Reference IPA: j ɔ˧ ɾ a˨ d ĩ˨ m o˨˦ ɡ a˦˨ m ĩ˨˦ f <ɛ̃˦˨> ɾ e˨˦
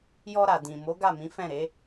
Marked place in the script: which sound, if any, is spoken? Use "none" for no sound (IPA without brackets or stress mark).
ɛ̃˦˨